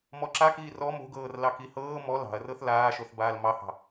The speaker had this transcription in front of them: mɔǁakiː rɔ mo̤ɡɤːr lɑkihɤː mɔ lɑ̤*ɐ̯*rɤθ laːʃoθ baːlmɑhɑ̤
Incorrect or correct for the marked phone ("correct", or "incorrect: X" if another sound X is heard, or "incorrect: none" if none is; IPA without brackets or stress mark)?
correct